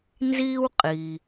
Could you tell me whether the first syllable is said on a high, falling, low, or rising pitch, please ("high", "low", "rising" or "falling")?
high